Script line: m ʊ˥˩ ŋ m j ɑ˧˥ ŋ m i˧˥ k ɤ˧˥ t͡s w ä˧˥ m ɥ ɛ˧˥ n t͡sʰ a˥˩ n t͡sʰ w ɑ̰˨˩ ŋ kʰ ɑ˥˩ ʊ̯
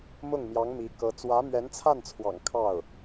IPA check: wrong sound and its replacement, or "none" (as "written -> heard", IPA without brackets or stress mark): none